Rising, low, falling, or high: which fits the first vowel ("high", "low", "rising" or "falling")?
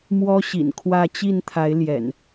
high